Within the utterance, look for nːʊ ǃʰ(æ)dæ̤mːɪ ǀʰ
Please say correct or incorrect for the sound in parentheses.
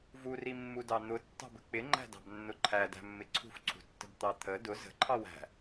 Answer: correct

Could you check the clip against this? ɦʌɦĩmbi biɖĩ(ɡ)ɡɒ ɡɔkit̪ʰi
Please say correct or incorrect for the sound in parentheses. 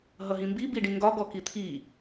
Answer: incorrect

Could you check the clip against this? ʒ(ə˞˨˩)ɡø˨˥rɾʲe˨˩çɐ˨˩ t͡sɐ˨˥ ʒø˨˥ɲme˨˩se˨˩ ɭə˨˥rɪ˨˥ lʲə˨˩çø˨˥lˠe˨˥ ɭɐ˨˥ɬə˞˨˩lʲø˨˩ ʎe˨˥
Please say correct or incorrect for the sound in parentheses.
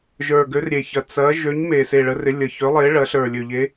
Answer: correct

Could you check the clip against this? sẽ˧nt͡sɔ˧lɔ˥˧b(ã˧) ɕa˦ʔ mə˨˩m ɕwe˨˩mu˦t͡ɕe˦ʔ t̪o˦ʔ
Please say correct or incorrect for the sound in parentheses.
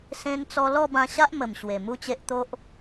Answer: correct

